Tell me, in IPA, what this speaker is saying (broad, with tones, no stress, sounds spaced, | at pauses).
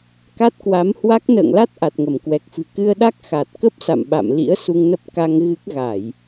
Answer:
k a˦˥ t̚ k w a˨˦ m h w a˦˥ k̚ n ə̰ː˧˨ ŋ l a˦˥ t̚ ʔ a˨˩ t̚ ŋ ə˧˩ m k w ɛ˨˩ k̚ f ɨ̤˨˩ k ɨ˧ ə̯ ɗ a˦˥ k̚ x a˨˩ t̚ k ə˦˥ p̚ s a̰˧˨ m ɓ a̰˧˨ m l ḭ˧˥ ə̯ s u˧ ŋ n ə˦˥ p̚ k a˧ ŋ ɣ ɨ˦˥ k̚ ɣ a˧˩˨ j